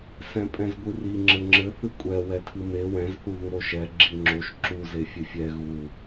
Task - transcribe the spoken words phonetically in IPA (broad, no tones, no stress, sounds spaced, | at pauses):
s ɛ̃ pʼ ɛ̃ z ɡʷ ɨ r i ŋ͡ǁ ɘ ŋ͡ǁ ɘ θ ɨ kʷʼ ɛ w ɛ tʰ ɨ m e w ɛ̃ z θ u ð u ɾ o ʃ ɛ ɡ͡ǁ i ŋ͡ǁ o ʃ ǁ u z e fʲ ɨ fʲ ɛ ɣ u